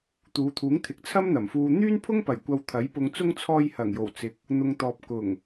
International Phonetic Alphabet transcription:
t̪uː˨˧t̪ʰuː˨˥ŋt̪ʰɪ˨˥k̚ t͡sʰɐ˥mn̪ɐ˨˩mfuː˧ n̪yː˥npʰʊ˥ŋpɐ˨˩j kʷɐ˧wt̪ʰɐ˨˥jpʊ˧ŋt͡sʊ˥ŋ t͡sʰɔː˧jhɐ˨˩ŋjo˨˩w t͡sɪ˨˥k̚ | n̪ʊ˨ŋt̪ɔː˨p̚ kʊ˨˩ŋ

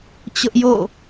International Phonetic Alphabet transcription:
t͡ɕʊ˦ʔjo̰˦˨

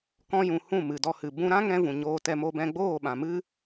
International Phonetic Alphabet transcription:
kɔ̃˧jũ˨ hũ˦˨mɨ˨dɔ˧ hɨ˨ bũ˧ɾã˦ŋɛ̃˧ vũ˨ɲoː˧tɛ˧mo˧ bɛ̃˧ɡ͡boː˦˨ɓã˨mɨ˦

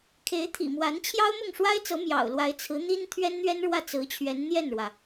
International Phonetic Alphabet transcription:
kʰe˧˥ɪ̯ t̪ʰḭ˨˩mwa˧˥n t͡ɕʰjɑ˥ʊ̯mʊ˥˩ŋʂwa˥ɪ̯t͡sɤ˧˥ mjɑ̰˨˩ʊ̯lwa˧˥ɪ̯ t͡sʰɹ̩˧˥n̪i˥n t̪ʰɥɛ˥nn̪ɥɛ˥n ɻwä˥˩t͡sɹ̩˧˥t͡ɕʰɥɛ˧˥n n̪jɛ˥˩nɻwä˩

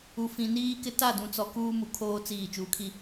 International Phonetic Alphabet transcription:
u˨fĩ˨ niː˦kɪ˦ ta˦˨dũ˨t͡sɔ˨ kuː˦mu˨kʰoː˦ t͡siː˦˨ t͡ʃuː˨kʰi˦

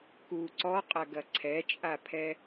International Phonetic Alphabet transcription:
ku ǀɔqʼɐɡɐ ǀʰɛt͡ʃʼapʰɛ

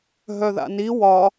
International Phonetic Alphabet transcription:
ɦœða̰ni wɒ

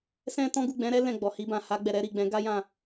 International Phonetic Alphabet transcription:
sɛ̃˦tɔ̃˦ ɡu˦˨ɡ͡bɛ̃˨˦ɾɛ˦ lɛ̃˦˨ɡ͡bɔ˨hi˧bã˨ ha˧ɡ͡bɛ˨ ɾɛ˨˦ɾi˦˨ ɡ͡bɛ̃˨˦ɡa˦ jã˦˨

